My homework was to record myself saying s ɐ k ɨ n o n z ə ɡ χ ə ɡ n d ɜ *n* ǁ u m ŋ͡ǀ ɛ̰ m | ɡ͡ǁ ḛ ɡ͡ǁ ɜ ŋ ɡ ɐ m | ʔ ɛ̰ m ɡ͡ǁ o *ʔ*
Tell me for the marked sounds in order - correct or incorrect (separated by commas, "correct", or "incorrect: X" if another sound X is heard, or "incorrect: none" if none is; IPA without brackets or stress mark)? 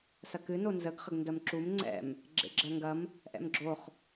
incorrect: m, incorrect: χ